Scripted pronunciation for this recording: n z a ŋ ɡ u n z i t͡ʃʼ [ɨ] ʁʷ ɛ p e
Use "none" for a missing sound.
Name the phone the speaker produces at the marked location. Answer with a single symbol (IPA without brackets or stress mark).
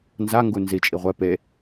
i